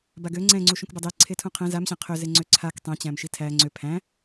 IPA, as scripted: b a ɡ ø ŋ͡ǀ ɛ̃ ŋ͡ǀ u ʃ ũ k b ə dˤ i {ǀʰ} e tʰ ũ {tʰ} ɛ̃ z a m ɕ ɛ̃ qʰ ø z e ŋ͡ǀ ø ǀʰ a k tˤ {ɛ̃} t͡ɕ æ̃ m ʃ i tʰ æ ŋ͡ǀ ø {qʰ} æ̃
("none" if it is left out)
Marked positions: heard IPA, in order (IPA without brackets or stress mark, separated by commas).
ǀʰ, qʰ, ɛ̃, pʰ